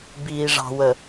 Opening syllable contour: low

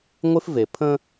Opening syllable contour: high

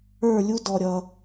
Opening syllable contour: falling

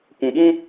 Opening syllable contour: low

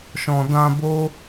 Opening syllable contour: low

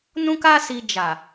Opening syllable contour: high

